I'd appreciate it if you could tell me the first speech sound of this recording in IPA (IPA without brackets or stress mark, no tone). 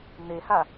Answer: n̪